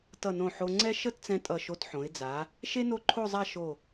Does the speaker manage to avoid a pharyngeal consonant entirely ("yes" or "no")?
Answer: no